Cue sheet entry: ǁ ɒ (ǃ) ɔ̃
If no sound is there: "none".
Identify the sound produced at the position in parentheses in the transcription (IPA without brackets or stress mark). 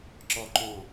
ǃ